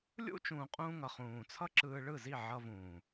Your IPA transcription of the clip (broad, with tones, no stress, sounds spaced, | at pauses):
lʲ ṵ˦ t͡ʃ ũː˨ qʼ ũː˧ ŋ ʌ˨ χ ũː˨ t͡sʰ ʌ˦ ǁ ɯː˧ ɭ ɯ˦˨ z i˦˨ ʕ ʌ˧ v ũː˨